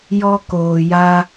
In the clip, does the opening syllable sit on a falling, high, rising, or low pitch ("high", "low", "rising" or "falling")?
high